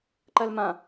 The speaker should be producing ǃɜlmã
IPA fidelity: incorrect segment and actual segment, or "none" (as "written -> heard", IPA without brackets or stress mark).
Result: none